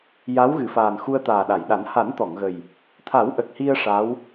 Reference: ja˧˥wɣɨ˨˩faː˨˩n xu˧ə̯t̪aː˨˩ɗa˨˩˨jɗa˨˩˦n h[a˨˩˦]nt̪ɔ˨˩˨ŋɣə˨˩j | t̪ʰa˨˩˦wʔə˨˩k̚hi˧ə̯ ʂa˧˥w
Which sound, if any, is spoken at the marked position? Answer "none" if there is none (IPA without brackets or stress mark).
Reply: a˨˩˦